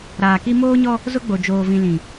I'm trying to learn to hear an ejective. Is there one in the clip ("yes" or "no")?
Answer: no